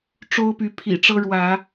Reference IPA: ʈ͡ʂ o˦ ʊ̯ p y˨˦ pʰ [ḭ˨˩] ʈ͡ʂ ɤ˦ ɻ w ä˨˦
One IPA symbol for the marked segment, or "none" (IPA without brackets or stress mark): ḭ˨˩